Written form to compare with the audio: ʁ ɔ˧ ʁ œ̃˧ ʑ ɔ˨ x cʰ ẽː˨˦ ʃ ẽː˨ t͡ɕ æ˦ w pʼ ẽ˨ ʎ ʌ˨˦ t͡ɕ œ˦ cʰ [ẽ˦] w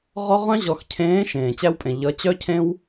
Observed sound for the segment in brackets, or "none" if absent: ẽ˦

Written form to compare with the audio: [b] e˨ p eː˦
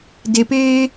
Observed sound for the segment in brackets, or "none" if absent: d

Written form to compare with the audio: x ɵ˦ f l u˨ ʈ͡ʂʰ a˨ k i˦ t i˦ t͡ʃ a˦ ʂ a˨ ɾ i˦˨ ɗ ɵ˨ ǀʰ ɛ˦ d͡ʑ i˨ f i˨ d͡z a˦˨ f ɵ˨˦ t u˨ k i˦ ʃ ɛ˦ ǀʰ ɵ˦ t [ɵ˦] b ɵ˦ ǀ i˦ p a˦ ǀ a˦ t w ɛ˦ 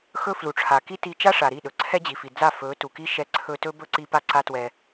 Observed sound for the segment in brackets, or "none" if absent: ɵ˦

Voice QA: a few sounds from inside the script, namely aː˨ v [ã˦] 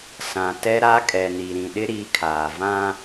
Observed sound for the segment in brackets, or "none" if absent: ã˦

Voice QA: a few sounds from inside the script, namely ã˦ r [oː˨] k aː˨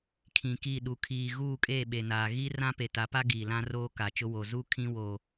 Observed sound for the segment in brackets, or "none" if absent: oː˦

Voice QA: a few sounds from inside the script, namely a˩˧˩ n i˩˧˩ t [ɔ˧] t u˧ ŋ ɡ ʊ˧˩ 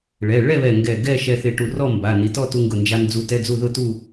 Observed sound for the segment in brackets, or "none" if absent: ɔ˥˨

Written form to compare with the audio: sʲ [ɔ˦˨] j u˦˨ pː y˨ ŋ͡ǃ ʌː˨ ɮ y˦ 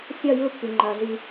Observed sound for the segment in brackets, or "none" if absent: ɔ˦˨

